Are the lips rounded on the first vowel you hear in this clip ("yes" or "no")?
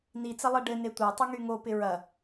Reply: no